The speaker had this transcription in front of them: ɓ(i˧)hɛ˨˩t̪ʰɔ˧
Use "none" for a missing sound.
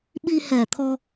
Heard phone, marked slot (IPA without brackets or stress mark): i˧